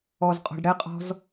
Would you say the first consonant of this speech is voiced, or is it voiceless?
voiced